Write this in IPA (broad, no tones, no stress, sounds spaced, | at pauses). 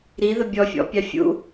ɾ i ð ə bʲ ɔ fʲ ɔ̰ pʲ ɑ fʲ ṵ